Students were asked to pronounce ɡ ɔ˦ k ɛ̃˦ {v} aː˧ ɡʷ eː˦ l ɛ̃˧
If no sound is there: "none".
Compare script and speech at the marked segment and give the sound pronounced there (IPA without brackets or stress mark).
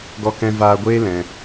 v